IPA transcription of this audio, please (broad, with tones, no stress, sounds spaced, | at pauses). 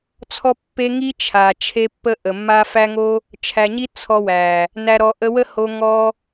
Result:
t͡sʰ ɔ˧ pː e˧ ŋ i˧ t͡ʃʰ a˨ t͡ʃʰ e˧ pː ə˧ ʔ ə˨ mː a˦ f æ˦ ŋ o˦ | t͡ʃʰ æ˨ ɲ i˧ t͡sʰ ɔ˧ w æ˨ | n æ˨ ɾ ɔ˨ ʔ ə˧ w ə˦ h o˧ ŋ ɔ˧